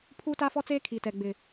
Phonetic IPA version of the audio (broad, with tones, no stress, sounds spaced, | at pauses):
pʰ uː˦ t a˦ f ɔ˦ t͡s eː˦ kʰ i˨ t ɛ˨ ɡ͡b ɪ˨